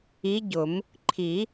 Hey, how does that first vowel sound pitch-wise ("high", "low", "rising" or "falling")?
rising